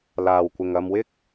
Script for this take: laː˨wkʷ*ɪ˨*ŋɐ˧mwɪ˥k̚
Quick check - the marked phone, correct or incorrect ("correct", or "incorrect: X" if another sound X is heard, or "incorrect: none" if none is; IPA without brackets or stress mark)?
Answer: correct